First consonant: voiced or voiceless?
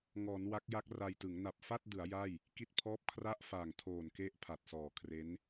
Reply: voiced